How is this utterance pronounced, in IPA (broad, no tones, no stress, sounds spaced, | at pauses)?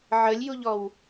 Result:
ʕ ə lʲ j u ʎ ɔ w